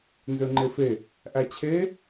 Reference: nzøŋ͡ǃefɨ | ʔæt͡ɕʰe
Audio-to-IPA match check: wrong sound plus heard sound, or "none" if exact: ɨ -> e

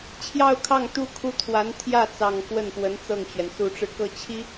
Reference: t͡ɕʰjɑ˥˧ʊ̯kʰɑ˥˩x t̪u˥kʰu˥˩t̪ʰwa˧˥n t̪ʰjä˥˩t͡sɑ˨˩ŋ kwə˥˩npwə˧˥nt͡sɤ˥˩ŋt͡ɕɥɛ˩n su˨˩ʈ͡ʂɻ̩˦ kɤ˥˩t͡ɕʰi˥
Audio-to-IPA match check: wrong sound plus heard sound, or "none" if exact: x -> ŋ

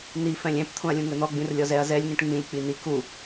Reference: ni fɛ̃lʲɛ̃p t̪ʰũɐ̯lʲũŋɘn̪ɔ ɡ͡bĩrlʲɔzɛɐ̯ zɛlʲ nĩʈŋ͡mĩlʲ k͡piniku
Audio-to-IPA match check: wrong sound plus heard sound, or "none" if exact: none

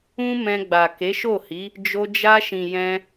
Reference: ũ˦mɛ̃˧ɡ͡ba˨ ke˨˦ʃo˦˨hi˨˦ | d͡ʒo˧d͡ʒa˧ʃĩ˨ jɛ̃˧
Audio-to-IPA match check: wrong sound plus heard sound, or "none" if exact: none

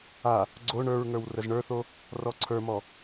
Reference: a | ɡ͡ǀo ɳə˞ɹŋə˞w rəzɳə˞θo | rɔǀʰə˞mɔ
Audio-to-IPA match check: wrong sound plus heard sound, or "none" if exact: none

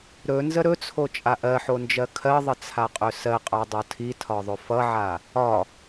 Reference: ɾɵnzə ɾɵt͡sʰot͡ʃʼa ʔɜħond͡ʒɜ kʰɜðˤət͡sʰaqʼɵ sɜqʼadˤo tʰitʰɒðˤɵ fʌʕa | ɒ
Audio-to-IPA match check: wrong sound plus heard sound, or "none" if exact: none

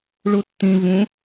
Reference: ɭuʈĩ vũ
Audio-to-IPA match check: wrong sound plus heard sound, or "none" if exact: ʈ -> tː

